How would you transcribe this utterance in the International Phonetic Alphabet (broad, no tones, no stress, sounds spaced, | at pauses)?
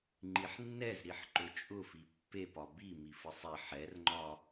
ŋ͡ǃ i ħ nː ɛ z ɾ i ħ ǃ ʊ t͡ʃʼ ʊ f i pː e p ɒ b i m i f ə sˤ ɛ ħ ɛ r ŋ͡ǃ ɒ